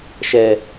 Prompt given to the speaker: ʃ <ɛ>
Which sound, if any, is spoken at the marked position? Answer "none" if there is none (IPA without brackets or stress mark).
ɛ